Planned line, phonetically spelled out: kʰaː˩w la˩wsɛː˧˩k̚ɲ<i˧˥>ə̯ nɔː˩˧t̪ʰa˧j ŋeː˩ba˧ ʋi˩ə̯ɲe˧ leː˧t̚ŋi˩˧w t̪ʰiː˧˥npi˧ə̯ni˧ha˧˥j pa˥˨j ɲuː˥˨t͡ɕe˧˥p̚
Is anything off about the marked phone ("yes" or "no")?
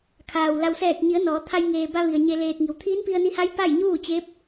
yes